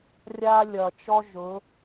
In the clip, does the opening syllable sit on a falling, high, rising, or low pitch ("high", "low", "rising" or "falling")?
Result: high